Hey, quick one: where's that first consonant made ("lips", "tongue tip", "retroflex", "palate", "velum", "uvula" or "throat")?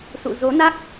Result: tongue tip